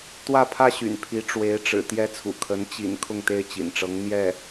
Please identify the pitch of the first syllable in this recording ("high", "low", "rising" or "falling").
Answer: falling